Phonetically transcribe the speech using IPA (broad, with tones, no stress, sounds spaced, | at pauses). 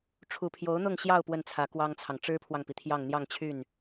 ʈ͡ʂʰ u˨˩ pʰ j o˧˥ ʊ̯ n̪ ʊ˥˧ ŋ ɕ j ɑ˥˧ ʊ̯ p w ə˥˩ n t͡sʰ ä˧˥ k w ɑ˥ ŋ t͡sʰ ɑ˨ ŋ ʈ͡ʂ ɻ̩˥ pʰ w ɑ˨ ŋ p i˩ t̪ʰ j ɑ˥˧ ŋ n̪ j ɑ˥˧ ŋ t͡ɕʰ y˥˩ n